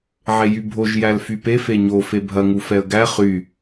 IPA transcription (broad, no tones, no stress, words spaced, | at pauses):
ʕejybʱoʒ jælfype feɲo febʱɐ ŋufɛə̯ɡæ χy